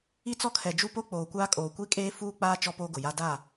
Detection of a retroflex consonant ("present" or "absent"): absent